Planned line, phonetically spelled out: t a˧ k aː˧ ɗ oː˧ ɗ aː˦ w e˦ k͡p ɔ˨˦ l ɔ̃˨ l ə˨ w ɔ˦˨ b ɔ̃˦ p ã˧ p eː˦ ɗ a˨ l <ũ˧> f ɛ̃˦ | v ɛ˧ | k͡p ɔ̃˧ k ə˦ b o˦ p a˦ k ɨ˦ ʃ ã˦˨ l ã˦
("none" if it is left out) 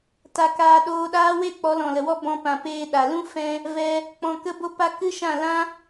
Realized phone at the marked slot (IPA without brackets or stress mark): ũ˦